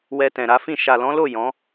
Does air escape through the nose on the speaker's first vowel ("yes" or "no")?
no